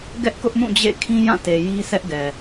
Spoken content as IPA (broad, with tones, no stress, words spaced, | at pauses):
ɡɛ˦ʔkʊ˦ʔ mũ˦˨d͡ʑḛ˦˨ kʰĩ˦jã˦˨te˨ ji˦sʰɛ˦ʔɡɛ˨